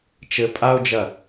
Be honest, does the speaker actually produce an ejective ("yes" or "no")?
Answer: yes